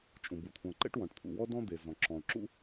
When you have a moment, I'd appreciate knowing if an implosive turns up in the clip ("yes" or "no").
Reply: no